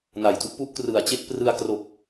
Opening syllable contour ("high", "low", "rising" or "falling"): low